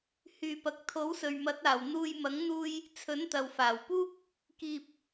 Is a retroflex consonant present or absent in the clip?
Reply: absent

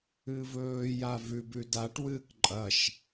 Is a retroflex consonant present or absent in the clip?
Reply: present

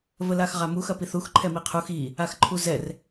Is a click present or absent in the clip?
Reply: present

